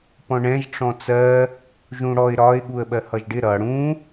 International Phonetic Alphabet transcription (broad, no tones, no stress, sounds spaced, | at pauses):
p ɔ̃ ɳ ɛ̃ ʒ ʈ͡ʂ ɔ̃ t͡s ɜ | ʒ ũ ɽ ɔ ɪ̯ ɾ ɒ ɪ̯ ɠ u ə̯ ɓ ɜ h ʌ ʒ ɖ ɪ ɾ ʌ ɽ ũ